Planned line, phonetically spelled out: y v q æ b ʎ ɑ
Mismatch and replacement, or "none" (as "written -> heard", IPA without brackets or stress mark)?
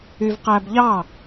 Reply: none